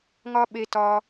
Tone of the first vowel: high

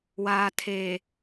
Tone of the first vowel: low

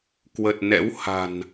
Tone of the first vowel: low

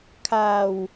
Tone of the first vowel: low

